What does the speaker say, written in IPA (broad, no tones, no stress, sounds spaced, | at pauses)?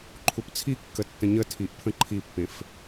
ǃʰ u p t͡sʰ i kː ə tː ə̃ ɲ ə tʰ i ʔ pʰ ə̃ ǃʰ i pː ẽ f